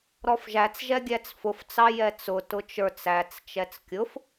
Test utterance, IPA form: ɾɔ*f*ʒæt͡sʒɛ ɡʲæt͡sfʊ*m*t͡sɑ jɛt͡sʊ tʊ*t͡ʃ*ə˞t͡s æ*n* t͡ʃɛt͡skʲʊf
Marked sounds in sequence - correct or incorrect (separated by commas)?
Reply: correct, incorrect, correct, incorrect